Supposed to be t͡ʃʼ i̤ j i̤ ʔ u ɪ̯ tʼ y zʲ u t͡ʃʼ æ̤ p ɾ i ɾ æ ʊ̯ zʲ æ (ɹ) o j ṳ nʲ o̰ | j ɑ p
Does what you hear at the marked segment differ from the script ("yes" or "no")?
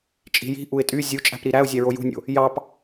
no